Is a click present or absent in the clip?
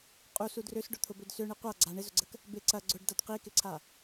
present